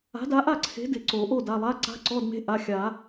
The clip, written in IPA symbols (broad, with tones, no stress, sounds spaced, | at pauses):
a̤˨˥ d a˨˥ ʔ a˥˨ ǀʰ e̤˨˥ d ɪ˩˧˩ ǀ o˨˩˦ ʔ o˥˨ d a˩˧˩ lˠ a˧˥˧ ǀ a̤˧˥˧ ǀ ɔ˧˥˧ d m e̤˧˥˧ ʔ a˩˧˩ xʲ a˨˩˦